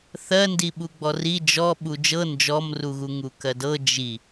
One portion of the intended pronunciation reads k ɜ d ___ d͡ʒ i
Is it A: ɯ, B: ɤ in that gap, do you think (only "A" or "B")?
B